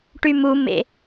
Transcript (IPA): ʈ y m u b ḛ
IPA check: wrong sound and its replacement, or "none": b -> m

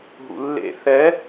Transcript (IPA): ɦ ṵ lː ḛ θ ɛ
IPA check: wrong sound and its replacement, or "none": none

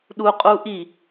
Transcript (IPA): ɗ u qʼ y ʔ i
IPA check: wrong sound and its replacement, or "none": y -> u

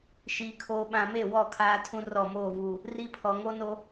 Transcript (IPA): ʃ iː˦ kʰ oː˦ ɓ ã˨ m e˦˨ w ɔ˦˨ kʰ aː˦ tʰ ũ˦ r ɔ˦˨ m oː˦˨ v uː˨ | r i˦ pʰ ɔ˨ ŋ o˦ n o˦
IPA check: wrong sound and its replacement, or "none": none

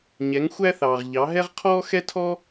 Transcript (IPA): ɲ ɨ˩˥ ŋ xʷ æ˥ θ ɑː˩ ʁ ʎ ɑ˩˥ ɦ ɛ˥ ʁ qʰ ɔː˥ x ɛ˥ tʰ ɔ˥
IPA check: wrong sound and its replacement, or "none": ɨ˩˥ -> ɛ˩˥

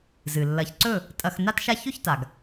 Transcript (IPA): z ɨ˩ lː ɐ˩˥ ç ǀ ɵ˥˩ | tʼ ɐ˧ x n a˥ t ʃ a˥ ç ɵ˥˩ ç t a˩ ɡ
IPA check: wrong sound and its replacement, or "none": none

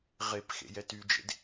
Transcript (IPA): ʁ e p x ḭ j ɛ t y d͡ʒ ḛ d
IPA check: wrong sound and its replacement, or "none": ḭ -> ḛ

